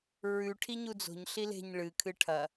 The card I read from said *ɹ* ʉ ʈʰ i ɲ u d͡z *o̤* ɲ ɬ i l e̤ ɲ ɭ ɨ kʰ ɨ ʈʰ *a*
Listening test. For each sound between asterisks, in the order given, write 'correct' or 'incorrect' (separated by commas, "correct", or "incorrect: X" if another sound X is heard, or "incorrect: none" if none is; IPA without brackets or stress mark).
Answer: correct, correct, incorrect: ɐ